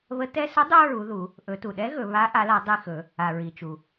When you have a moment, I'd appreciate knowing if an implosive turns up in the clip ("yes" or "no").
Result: yes